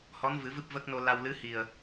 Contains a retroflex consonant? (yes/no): no